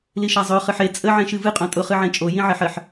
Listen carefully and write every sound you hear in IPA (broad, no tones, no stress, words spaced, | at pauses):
liʃazˤø χɨħe t͡sʼə ʕẽʃɨvɨ qʼõtʼʊ χɨʕẽt͡ʃʼo jĩʕeħɜħ